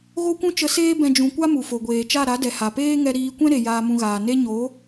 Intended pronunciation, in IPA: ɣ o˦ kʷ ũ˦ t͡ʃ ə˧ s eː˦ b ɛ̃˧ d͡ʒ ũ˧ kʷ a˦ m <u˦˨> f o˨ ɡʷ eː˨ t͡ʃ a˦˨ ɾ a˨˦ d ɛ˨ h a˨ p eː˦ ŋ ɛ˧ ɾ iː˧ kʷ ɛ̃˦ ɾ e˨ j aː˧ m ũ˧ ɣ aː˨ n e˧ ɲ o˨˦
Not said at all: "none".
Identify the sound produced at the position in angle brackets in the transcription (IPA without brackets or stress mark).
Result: u˨